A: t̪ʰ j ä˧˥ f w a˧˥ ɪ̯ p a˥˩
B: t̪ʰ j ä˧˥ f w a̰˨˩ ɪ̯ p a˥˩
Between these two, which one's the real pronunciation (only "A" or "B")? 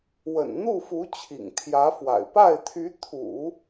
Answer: B